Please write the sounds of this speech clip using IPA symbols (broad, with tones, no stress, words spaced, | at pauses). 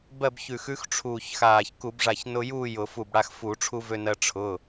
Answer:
bɜ˥˨bçʉ˧˩xʉ˧˥x ʈ͡ʂʰuː˧˩çxaː˧˩ç ku˧˩˧bʐa˧˩çnʊ˧juː˥˨ jʊ˧˩˧fu˧˩bɽa˧x fu˧˩˧ʈ͡ʂʰu˧vø˧nɜ˧ ʈ͡ʂʰʊ˩˧˩